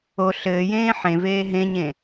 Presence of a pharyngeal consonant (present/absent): present